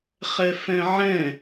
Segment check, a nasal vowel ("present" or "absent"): present